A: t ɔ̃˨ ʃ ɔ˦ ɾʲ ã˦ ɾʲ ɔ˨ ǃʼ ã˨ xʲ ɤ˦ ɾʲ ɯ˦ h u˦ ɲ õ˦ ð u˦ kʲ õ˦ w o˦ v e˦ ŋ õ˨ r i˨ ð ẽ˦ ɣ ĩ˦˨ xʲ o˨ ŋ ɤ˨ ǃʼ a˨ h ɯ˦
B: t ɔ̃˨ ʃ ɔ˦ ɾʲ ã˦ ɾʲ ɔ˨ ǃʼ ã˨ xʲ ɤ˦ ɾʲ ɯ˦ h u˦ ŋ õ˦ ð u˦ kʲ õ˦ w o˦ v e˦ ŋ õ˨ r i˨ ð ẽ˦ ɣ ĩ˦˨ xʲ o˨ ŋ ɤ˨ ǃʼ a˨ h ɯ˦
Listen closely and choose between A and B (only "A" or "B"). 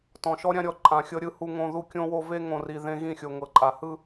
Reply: B